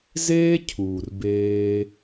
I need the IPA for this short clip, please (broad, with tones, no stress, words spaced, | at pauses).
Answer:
zeː˦cʰuː˨rbeː˧